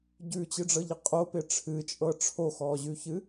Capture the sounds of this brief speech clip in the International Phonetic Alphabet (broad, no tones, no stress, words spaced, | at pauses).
ɟʉt͡ɕɨɖ͡ʐɤʎɪ qʼopɪ ʈ͡ʂʰɨt͡ʃʼɤ ʈ͡ʂʰoxɔːʑʉçɨ